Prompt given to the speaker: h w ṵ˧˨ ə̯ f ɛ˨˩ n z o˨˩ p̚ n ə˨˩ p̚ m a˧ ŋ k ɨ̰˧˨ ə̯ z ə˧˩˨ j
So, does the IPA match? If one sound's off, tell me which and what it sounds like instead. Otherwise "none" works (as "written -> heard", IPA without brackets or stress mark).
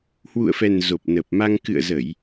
none